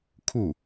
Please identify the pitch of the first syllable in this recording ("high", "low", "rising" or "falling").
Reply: falling